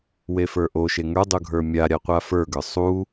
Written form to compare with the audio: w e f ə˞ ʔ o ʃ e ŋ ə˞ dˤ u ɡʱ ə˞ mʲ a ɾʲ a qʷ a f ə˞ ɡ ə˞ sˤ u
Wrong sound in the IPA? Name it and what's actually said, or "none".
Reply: none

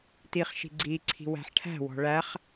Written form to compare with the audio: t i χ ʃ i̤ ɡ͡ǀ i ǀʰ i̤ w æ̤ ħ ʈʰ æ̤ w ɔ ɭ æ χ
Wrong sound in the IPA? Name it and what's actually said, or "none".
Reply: ɔ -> ɔ̤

